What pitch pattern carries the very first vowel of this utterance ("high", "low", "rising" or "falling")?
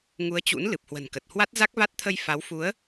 rising